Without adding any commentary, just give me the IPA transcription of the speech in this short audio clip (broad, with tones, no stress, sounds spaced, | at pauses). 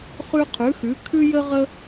χ ʉ˥ qʰ ʉ˧˥ x ʉ˧˥ kʰ ʉ˥ j ə˥ ʁ ə˥